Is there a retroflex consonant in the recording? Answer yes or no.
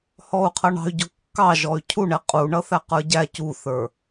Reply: yes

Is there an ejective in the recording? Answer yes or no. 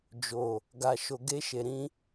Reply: no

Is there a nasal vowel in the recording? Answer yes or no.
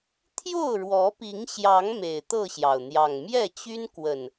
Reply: no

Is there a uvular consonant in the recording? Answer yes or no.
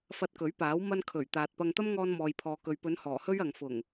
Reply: no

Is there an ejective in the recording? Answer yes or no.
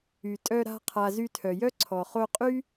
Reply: yes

